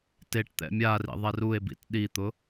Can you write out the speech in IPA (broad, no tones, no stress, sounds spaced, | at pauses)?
t e ʈ t̪ ɛ̰ mʲ a r ḭ ðˤ ɛ r u e̯ b ḭ t ɗ i t̪ ʊ